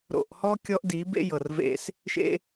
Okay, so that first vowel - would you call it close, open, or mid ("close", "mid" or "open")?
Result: mid